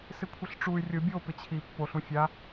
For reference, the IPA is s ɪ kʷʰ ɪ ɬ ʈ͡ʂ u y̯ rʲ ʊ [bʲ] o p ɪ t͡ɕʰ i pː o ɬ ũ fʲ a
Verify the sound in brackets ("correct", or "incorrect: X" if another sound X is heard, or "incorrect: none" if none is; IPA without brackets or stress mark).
correct